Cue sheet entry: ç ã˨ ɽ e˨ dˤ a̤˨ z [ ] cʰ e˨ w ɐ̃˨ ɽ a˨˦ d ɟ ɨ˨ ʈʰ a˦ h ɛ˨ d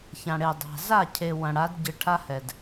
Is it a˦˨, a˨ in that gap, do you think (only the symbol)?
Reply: a˦˨